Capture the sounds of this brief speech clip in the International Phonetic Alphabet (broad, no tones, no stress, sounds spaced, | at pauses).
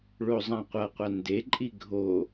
ɭ o zˤ ã qʷ ʌ qʷ a n d e ǃʼ i ɡʱ o